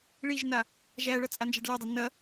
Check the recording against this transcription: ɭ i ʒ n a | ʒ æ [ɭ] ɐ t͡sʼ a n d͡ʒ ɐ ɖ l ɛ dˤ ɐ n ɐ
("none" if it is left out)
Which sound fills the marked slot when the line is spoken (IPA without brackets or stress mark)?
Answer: ɭ